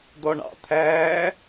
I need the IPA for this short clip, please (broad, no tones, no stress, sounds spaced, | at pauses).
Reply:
d̪ ɔ ɳ ɑ̰ t̪ʰ æː